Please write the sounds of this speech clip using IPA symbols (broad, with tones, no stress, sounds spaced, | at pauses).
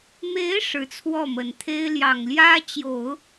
m e˧˥ ɪ̯ ʂ ɻ̩˧˥ t͡sʰ w ɔ˥˩ m ə˨˩ n t̪ʰ e˥ ɪ̯ l j ɑ˨˩ ŋ l j ä˥ t͡ɕ j o˨˩˦ ʊ̯